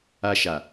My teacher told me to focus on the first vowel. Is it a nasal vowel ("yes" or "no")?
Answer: no